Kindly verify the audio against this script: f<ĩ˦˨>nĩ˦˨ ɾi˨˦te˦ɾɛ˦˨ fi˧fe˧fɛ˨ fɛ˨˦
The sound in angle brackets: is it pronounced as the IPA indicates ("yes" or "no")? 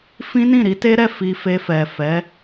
no